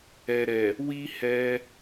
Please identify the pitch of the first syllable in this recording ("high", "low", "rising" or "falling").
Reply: low